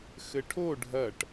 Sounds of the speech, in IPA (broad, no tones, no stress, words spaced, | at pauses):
xɘʈʰo ɖʱɐʈ